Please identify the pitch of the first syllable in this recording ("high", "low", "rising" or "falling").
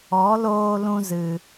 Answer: rising